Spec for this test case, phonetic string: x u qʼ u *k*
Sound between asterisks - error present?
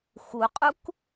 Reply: no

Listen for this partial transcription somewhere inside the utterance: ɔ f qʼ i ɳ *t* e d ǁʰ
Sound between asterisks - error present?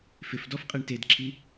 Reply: no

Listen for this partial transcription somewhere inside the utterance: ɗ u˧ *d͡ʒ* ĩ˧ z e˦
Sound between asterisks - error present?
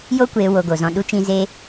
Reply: yes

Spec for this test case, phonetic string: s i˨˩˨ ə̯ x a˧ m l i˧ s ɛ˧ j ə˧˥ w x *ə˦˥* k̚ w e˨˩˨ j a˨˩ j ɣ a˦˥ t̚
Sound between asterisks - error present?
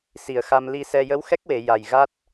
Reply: yes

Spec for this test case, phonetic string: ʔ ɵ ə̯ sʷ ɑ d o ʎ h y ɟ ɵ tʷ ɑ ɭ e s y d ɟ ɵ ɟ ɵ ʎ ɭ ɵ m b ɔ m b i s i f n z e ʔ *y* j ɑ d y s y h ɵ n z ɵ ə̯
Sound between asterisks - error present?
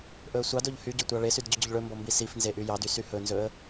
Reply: no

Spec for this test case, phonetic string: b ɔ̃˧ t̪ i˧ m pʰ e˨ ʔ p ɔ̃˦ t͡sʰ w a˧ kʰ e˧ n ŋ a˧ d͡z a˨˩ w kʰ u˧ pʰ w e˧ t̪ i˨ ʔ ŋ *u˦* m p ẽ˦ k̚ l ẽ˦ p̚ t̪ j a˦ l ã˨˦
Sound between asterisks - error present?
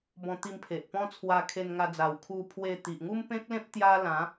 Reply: no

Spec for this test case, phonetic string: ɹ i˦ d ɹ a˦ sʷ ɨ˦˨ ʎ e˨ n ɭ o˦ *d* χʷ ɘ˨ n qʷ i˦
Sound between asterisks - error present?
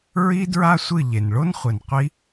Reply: yes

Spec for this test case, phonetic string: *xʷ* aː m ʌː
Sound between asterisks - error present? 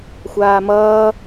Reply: no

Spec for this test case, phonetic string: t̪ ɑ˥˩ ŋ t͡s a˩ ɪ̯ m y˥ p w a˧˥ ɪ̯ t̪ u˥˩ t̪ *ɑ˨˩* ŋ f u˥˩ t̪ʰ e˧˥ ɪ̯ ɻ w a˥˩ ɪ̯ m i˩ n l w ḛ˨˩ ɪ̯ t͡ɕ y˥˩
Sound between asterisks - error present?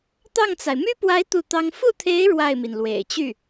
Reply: yes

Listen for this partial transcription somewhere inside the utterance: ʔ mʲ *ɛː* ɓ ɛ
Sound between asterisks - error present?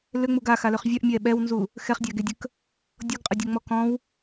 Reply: no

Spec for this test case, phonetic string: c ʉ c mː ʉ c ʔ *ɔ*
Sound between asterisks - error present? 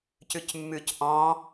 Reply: yes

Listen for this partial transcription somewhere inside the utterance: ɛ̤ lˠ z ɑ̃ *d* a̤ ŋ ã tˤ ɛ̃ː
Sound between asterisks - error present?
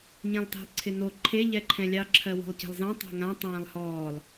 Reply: yes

